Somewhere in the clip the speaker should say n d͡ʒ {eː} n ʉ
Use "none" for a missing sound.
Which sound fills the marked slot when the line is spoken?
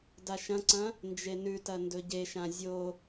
e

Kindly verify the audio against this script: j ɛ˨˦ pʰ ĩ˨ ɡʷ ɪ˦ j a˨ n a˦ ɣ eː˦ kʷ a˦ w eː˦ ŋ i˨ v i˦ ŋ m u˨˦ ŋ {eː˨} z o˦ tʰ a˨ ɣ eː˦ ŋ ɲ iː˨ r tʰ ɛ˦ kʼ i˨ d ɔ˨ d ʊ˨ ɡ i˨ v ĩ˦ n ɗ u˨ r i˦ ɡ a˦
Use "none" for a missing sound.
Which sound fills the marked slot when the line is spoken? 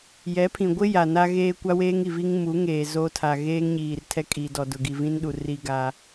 eː˨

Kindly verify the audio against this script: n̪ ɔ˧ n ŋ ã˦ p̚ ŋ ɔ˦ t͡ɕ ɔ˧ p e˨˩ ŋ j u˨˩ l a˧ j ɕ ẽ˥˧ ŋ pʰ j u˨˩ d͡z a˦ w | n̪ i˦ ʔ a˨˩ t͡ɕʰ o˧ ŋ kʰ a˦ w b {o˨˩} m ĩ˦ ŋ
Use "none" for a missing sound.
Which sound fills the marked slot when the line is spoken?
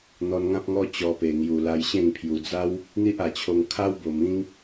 o˨˩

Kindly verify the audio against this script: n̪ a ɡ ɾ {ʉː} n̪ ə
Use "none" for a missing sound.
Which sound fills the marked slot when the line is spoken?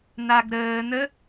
əː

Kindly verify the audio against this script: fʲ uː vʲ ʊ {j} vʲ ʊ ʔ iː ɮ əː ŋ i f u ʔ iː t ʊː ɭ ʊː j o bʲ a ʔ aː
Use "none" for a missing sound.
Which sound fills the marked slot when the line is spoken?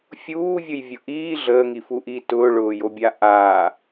j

